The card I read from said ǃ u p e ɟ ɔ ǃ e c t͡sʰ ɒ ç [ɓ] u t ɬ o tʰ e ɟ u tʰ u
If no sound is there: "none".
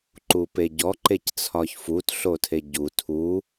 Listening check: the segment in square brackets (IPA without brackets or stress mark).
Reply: f